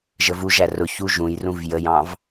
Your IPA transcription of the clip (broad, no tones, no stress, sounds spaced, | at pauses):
ʒ ə v u ʒ æ r ʊ ç u ʒ ũ j r ũ v j ə j ɑ̃ v